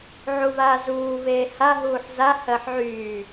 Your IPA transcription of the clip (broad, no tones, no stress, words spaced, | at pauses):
ʕuβaːzuː βeːha ɦuːħza hɜħʕyː